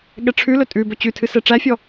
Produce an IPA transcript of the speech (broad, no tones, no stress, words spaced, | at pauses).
ɠɛʈ͡ʂʰʉlɵ tʼʉ bɵt͡ɕʉtʰɨ sɛʈ͡ʂæfʲɔ